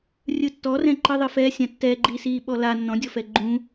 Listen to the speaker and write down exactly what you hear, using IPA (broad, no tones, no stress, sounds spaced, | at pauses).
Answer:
rʲ ɯ tː ɔ r ɛ̃ ǃ ɯ ðˤ ɯ f ɛ sʲ ã tː ɛ ɡ͡ǃ iː s iː ɓ ɔ l a nː ɔ̃ dʲ ɔ f ɛ ɡ͡ǃ ũ